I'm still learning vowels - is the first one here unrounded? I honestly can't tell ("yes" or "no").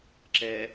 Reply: yes